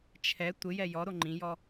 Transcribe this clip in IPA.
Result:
t͡ʃʰ ɛ tʷ ɪ j ɛ j ɔ ɾ o ŋ͡ǃ ĩ j ɔ

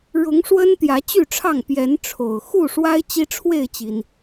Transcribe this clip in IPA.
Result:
ɻ ʊ˨˦ ŋ ʂ w ə˦ n t̪ j ä˨˦ t͡ɕ y˥˨ ʈ͡ʂʰ ɑ˥˨ ŋ p j ɛ˨˦ n ʈ͡ʂʰ o˨˩ ʊ̯ x u˥˨ ʂ w a˦ ɪ̯ t͡ɕ i˦ ʈ͡ʂʰ w e˥˨ ɪ̯ t͡ɕ i˩ n

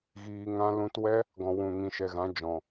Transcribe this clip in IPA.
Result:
ɣ iː˨ ŋ ã˧ l ũ˧ t w ɛ˦ | ɡ ɔ̃˨ w ũ˨ ŋ ĩ˨ ʃ ɛ˨ ɣ ã˨˦ d͡ʒ ɔ̃˨

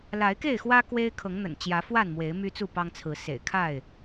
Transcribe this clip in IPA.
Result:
l a˨˦ ɪ̯ k e˥˨ ɪ̯ x w ä˦ k w e˦ ɪ̯ kʰ ɤ˨˦ ŋ n̪ ə̰˨˩ n t͡ɕ j ä˨˦ f w a˥˨ n m w e˨˦ ɪ̯ m y˦ t͡s u˥˨ p ɑ˦ ŋ t͡sʰ ɹ̩˨˦ s ḛ˨˩ ɪ̯ kʰ a˥˨ ɪ̯

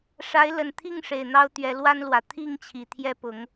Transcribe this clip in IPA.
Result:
ʂ a˨˦ ɪ̯ l ə˨˩ n t̪ʰ i˥˨ ŋ ʂ e˨˩ ɪ̯ n̪ ɑ˦ ʊ̯ t̪ ɥ ɛ˨˦ l w a˦ n l w ä˨˩ t̪ʰ i˥˨ ŋ t͡ɕʰ i˨˩ t̪ʰ j ɛ˦ p ʊ˨˦ ŋ

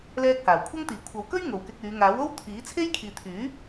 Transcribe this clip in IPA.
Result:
l ɛː˧ k̚ h aː˨˩ w kʷʰ ɐ˥ ŋ t̪ iː˨˩ kʷʰ ɐ˨˧ w k ɵ˥ ɥ ŋ o˨ w k ɪ˧ k̚ yː˨˧ ŋ aː˨˥ w o˥ w t̪ʰ iː˨˥ t͡sʰ e˥ j kʰ iː˨ t̪ʰ yː˨˥

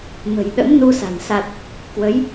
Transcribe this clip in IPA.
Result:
m ə̤˨˩ j ɗ ə̰˧˥ m n u˧ s a̤˨˩ n s a˨˩ t̚ | k w ə˨˦ j

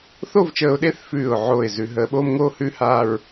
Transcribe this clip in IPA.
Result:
θ o˥˧ v t͡ʃ əː˧ ʊ̯ ɗ e˥˧ θ f ʉː˧˩ ʊ̯ ʕ oː˧˩ ɪ̯ z ʉ˩˧ ɦ əː˩˧ ɓ oː˥ m ŋ oː˥ h ʉː˥ h aː˥˧ ɹ

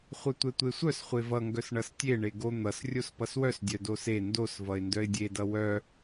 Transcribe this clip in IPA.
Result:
χʷ œ tʷ ɛ tʷ e sʷ œ s χʷ e v ʌ ŋ ɡ œ s ɳ ʌ s tʲ e ɳ e ɡ o n̪ ʌ s rʲ o s p ʌ s w œ s dʲ œ d o s e n d o s v ʌ ɪ̯ n d œ ɪ̯ dʲ e d ʌ w œ

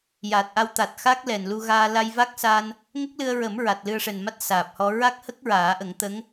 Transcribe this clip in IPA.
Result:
j aː˨˩ t̚ ʔ a˧ w t̪ a˨˩ t̚ x a˦˥ k̚ l ɛ˨˩ n l u˧ ɣ aː˧ l a˧ j v a˦˥ k̚ s a˧ n | ŋ ə˦˥ k̚ l ɨ˧ ə̯ ɹ ə˨˩˦ m ɹ a˨˩ t̚ l ɨ˧ ə̯ ʂ ɛ˨˩ n m a˦˥ t̚ s aː˨˩ p̚ h ɔ˧ ɹ a˦˥ k̚ h ə˦˥ k̚ ɹ aː˨˩˦ ʔ ə˨˩˦ ŋ t̪ ə˧˥ ŋ

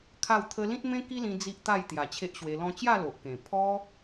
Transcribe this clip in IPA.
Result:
kʰ a˥˧ w t̪ʰ ə˦ l ĩ˦ t̚ m ẽ˦ k i˦ l ĩ˧ d͡z i˦ ʔ t̪ a˥˧ j t̪ j a˨˩ t͡ɕʰ e˦ ʔ ɕ w e˧ l ɔ̃˦ t͡ɕ j a˥˧ l o˨ ʔ k ẽ˨˩ pʰ ɔ˦

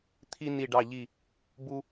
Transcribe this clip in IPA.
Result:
t̪ʰ i˦ n i˧˩ ɖ ɑ˧˩ ʎ i˧˩ | b u˦

